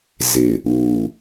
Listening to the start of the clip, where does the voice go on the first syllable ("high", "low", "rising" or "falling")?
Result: low